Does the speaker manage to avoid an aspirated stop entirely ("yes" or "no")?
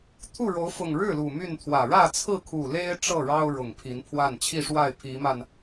no